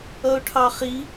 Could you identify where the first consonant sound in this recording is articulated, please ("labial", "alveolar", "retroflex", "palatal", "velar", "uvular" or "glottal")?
retroflex